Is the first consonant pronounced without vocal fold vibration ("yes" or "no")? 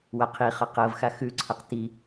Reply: no